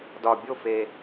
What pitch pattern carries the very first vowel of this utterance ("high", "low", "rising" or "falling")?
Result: low